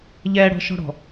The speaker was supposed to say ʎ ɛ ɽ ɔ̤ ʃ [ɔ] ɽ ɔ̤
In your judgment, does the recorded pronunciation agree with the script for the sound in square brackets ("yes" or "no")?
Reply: no